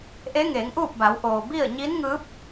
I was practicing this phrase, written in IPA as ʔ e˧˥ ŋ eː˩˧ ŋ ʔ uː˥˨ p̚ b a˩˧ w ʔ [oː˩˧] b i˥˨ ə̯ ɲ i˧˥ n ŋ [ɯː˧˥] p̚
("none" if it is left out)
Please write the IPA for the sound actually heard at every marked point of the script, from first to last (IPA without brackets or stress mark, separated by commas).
oː˩, ɯː˧˥